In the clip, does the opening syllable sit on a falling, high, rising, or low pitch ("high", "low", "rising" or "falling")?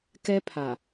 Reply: high